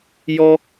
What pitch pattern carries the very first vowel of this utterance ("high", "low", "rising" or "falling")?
high